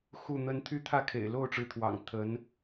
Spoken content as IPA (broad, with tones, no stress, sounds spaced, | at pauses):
x u˥˩ n̪ ə˥ n t̪ʰ y˥˧ t̪ʰ ä˥˩ kʰ ḛ˨˩ ɪ̯ l o˥˩ ʊ̯ ʈ͡ʂ ɻ̩˧˥ t̪ʰ w ɑ̰˨˩ ŋ t̪ʰ ə˧˥ n